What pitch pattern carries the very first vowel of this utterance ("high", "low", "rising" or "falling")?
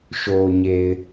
low